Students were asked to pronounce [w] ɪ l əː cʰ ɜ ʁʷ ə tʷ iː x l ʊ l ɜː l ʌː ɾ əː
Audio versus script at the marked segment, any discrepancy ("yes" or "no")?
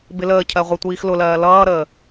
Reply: yes